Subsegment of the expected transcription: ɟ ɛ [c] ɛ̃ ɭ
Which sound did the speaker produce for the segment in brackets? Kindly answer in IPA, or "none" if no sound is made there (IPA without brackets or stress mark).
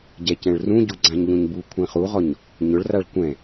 c